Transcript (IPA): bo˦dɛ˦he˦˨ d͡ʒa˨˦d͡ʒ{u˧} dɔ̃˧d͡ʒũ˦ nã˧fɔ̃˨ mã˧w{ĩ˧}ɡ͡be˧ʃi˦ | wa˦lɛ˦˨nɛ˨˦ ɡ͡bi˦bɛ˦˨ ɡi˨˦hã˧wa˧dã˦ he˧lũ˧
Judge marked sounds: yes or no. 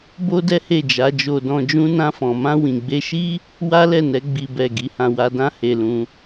no, no

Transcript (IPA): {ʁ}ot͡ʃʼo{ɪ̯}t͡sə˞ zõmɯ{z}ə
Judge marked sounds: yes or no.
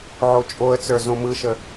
no, no, no

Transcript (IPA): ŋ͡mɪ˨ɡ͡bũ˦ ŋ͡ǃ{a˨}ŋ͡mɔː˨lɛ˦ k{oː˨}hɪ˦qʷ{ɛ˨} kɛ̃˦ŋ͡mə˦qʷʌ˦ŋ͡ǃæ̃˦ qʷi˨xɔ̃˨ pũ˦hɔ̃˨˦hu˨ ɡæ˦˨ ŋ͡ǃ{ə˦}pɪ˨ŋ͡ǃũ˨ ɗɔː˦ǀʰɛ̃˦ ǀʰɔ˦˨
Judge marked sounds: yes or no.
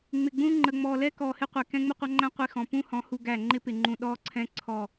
no, no, yes, no

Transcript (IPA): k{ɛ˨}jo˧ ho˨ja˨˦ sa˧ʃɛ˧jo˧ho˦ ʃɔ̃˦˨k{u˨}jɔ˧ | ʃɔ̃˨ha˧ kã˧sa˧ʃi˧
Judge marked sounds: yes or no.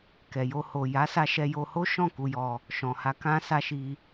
yes, no

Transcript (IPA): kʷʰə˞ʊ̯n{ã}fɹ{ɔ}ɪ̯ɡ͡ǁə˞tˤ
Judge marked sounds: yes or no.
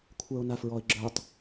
no, yes

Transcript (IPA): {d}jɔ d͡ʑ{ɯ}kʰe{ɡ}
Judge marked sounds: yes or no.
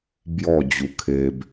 no, no, no

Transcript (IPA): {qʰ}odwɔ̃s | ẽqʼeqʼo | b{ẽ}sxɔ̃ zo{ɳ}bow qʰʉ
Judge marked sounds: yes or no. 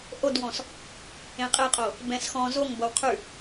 no, no, no

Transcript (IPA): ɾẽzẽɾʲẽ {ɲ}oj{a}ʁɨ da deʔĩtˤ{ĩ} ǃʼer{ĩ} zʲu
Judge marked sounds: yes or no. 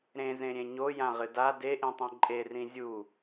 yes, no, no, yes

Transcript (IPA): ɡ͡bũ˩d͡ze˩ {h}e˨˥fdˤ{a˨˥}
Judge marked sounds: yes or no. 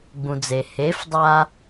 yes, no

